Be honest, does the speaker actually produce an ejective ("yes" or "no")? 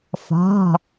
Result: no